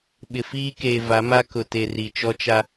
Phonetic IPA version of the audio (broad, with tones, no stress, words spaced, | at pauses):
ɓɪ˨fiː˦ keː˨ va˨˦ma˦ kʊ˨te˨ ri˨t͡ʃɔ˦t͡ʃa˦